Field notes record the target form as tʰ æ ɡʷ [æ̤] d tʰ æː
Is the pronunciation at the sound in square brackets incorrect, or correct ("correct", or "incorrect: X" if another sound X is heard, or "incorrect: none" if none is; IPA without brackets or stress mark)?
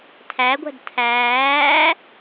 correct